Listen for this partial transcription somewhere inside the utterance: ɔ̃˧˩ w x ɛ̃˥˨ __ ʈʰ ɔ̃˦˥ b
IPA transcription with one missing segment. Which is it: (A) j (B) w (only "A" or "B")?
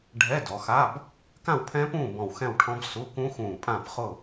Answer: B